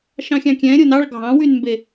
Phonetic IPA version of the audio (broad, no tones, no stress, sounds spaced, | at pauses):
ʃ ɑ̃ xʲ ɑ̃ kʲ ɛ̃ ɾʲ o n ɑ ɭ ɡʱ ɑ̃ w y n m b e